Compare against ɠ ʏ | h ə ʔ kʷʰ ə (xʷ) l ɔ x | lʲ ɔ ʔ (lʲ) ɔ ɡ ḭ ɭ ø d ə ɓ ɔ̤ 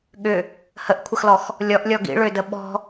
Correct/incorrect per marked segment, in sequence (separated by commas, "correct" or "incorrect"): incorrect, correct